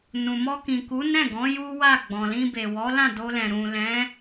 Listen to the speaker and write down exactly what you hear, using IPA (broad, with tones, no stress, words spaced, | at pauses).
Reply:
nũ˨mɔ˧kĩ˨ ku˨˦nɛ̃˦˨ɡɔ̃˨˦ ju˦wa˦˨ ɡ͡bɔ̃˨lĩ˧be˨ wɔ˨˦lã˦˨ do˧lɛ̃˨ ɾũ˨lɛ̃˨˦